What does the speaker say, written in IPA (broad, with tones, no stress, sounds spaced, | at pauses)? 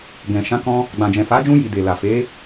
ɡ ɛ̃˨ ʃ ã˨˦ k ɔ̃˧ | ɡ͡b ã˨ d͡ʒ ɛ̃˨ f a˨˦ d͡ʒ ũ˧ j i˨ d e˨ l a˨ f e˨˦